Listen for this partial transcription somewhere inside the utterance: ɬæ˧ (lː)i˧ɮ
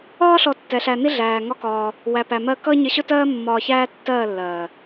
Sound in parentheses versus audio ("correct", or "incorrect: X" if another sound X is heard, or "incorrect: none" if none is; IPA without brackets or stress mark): incorrect: n